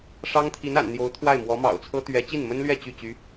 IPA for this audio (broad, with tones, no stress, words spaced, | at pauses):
ʂɑ˥ŋt̪ʰi˧˥na̰˨˩n n̪jo˧˥ʊ̯t̪ʰwa˥˩ɪ̯mwɔ˧˥ mɑ̰˨˩ʊ̯t͡sʰɤ˥ t̪ɥɛ˧˥ t͡ɕi˥˩nmə˥nlɥɛ˥˧ t͡ɕy˥˩t͡ɕy˧˥